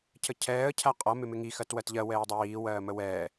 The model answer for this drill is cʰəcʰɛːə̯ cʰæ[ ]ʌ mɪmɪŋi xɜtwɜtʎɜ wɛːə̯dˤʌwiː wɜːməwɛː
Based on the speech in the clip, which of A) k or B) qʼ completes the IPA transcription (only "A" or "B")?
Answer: B